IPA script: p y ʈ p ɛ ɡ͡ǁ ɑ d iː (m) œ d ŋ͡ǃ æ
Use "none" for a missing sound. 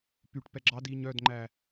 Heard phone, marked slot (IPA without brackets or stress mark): ɲ